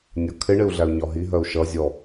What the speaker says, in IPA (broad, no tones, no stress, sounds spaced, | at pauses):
nʲ ɒ kʰ ɪ ɳ ɪ u̯ ɮ æ u̯ ɲ ɒ ɦ i ɦ ɜ u̯ ʃ ʌ zʲ ɔ